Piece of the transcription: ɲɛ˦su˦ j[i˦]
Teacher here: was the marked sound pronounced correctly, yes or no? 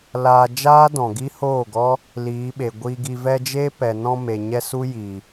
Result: no